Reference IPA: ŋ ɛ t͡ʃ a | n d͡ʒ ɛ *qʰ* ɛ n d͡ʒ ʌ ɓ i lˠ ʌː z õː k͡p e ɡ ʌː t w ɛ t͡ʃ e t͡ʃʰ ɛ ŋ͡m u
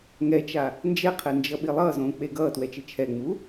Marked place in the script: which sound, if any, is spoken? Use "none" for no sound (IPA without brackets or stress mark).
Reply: qʰ